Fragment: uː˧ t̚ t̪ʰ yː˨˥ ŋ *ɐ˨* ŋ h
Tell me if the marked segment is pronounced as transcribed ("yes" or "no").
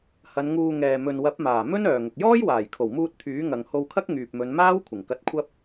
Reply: yes